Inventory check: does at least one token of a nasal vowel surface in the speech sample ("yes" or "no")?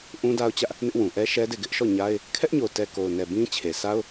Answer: yes